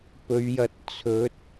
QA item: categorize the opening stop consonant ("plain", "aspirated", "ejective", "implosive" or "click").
plain